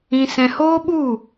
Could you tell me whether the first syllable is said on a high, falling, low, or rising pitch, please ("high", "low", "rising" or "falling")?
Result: high